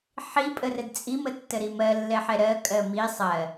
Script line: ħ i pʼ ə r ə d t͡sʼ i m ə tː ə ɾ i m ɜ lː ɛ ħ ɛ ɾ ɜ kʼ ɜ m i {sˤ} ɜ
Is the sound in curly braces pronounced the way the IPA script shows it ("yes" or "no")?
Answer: yes